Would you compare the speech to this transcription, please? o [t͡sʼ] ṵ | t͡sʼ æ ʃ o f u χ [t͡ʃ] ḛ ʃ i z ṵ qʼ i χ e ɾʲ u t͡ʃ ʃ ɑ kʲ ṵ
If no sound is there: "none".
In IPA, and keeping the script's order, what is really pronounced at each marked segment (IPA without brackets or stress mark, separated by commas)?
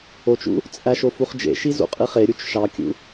t͡ʃ, d͡ʒ